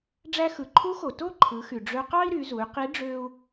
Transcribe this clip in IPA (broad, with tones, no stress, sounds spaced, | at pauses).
ɖ͡ʐ æ˧ x ɯ˩ ǃʰ u˧˥ x o˩ t o˥ ǃʰ ɯ˩˧ x y˩ ɖ͡ʐ ø˧ q ɑ˥ i̯ ɾ y˩˧ z u˩˧ y̯ q i˧˥ ɖ͡ʐ ø˥ u̯